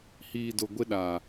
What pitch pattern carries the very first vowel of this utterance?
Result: low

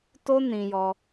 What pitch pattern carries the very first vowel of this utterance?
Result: high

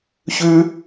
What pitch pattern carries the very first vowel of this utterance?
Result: high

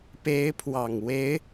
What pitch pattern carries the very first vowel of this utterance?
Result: rising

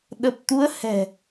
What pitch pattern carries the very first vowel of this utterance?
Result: low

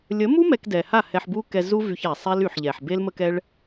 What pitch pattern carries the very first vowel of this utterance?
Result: rising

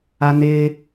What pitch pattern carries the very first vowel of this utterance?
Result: low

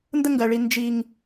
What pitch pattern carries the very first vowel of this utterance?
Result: high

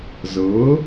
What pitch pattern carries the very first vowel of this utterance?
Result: rising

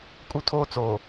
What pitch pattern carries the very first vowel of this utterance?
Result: high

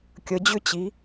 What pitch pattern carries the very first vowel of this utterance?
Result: rising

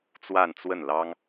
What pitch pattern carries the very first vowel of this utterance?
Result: falling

